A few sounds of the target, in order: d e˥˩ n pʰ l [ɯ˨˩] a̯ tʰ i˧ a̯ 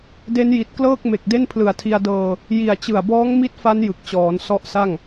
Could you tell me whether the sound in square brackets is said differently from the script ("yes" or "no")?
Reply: no